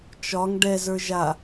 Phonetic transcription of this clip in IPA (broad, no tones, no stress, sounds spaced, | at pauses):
t͡ʃ ɒ ŋ ɖ ɛ z ə˞ ʒ a